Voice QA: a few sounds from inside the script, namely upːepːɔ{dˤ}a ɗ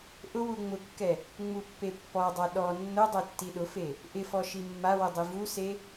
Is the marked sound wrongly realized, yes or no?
no